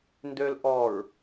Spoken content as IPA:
n d ø l ʔ ɔ ɹ

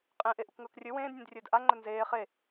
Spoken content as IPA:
qʼ ẽ ʔ e ʔ u k ŋ ɵː k rʲ ɵ w ẽː d nʲ ẽ d rʲ ɵː d ʔ a ŋ͡ǃ ɵ n z eː χ e

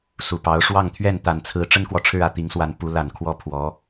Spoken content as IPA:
s u˨˩ p ɑ˧˥ ʊ̯ ʂ w ɑ˥˧ ŋ t̪ʰ ɥ ɛ˥˩ n t̪ a˨˩ n t͡sʰ ɹ̩˧˥ ʈ͡ʂ ə˥ n k w ɔ˨ ʈ͡ʂʰ ɻ̩˥˧ ä˥˩ t̪ i˧˥ ŋ s w a˧˥ n p u˧˥ l a˨˩ n kʰ w ɔ˥ pʰ w ɔ˧˥

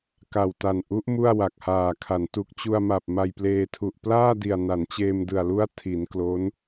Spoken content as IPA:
k a˨˩ w t a˨˩ n ʔ u˦˥ ʔ m u˥˩ a̯ w a˨˩ k̚ h aː˨˩ kʰ a˩˦ n t u˨˩ k̚ t͡ɕ u˧ a̯ m a˨˩ p̚ m a˧ j p l eː˧ tʰ u˨˩ ʔ p l aː˥˩ d i˨˩ a̯ n a˩˦ n t͡ɕ eː˧ m d ɯ˨˩ a̯ l u˦˥ a̯ tʰ i˩˦ n k l o˦˥ n

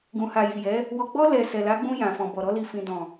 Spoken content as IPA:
ɡ ũ˨ h a˨ j i˨ j ɛ˨˦ | w ɔ˨ ɡ͡b ɔ˧ l ɛ˨ s ɛ˨ l a˨˦ ɡ͡b ũ˧ j ã˨ f ɔ̃˨ b ɔ˨ ɾ ɔ˨˦ l i˦˨ f ĩ˧ d ɔ̃˨

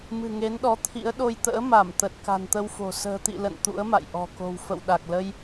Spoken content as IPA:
m ɨ̤˨˩ ŋ e˨˦ n ɗ ɔ˨˦ t̪ʰ ḭ˧˥ ə̯ ɗ o˧ j t̪ ə̰ː˧˥ m a˧˩ m t̪ ə˨˩ t̚ k a̤˨˩ n t̪ ə˧ w f o̤˨˩ s ə̤ː˨˩ t̪ ḭ˧˨ l ə̰˧˨ n t̪ ṵ˧˥ ə̯ m a̰˧˨ j ʔ ɔ̤˨˩ k o̤˨˩ w f ə̰˧˨ w ɗ a˨˩ k̚ l ə˧ j

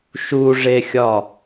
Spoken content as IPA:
ʃ u ʐ e xʲ ɒ

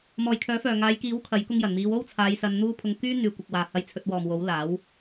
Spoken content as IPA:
m ɔː˨ j kʰ œː˨˥ f œː˨ ŋ aː˨˧ j k iː˨˥ w kʰ ɐ˨˥ j k ʊ˧ ŋ j ɐ˨˩ n m iː˨˧ w o˥ w t͡sʰ aː˨˧ j s ɐ˨˧ n n̪ uː˥ pʰ ʊ˧ ŋ k yː˥ n̪ yː˨ kʷ ɪ˨ k̚ w aː˨ h ɐ˧ j t͡sʰ ɵ˧ t̚ w ɔː˨ m w o˨˥ w l aː˨˥ w

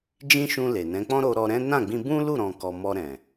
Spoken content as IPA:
d͡ʒ ĩ˦ ʃ ũ˧ l e˨ n ɛ̃˨˦ k͡p ɔ̃˦ ɾ o˧ ɾ ɔ˧ ɾ ɛ̃˦ n ã˦˨ ɡ͡b ĩ˧ b ũ˦ l u˦˨ ɾ ɔ̃˨ k ɔ˨ m ɔ˧ ɾ ɛ̃˨

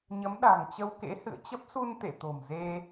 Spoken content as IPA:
ɲ ə˨˦ m ɗ a̤˨˩ ŋ t͡ɕ ə˧ w k ḛ˧˥ h ɨ̰˧˨ ə̯ t͡ɕ ə˦˥ p̚ s u˧ n t̪ ḛ˧˨ t̪ o̤˨˩ m z e˧

